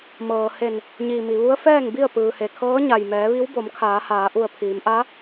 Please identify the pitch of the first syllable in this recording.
low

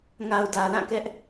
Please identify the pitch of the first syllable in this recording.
low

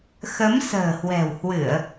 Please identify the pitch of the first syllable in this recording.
rising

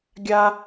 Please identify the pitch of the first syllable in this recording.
high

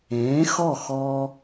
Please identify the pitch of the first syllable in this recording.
rising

